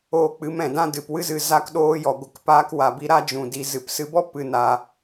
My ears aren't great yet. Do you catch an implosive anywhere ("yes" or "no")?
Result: yes